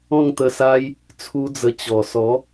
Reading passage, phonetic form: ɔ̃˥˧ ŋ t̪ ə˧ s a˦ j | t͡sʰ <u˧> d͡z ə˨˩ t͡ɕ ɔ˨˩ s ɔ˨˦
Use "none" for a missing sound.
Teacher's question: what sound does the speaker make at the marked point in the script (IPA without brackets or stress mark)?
u˧